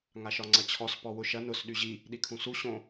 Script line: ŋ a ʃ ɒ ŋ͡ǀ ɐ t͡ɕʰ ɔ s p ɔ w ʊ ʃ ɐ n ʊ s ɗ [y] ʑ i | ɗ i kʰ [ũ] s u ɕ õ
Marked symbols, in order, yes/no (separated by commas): yes, yes